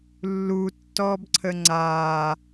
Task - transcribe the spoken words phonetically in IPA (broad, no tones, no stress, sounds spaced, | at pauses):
lː u tː ɔ b ǀʰ ə ŋ͡ǀ aː